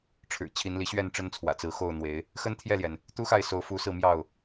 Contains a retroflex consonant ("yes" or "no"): yes